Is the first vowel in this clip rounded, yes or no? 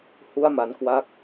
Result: yes